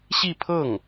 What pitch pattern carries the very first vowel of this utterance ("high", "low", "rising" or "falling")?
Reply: falling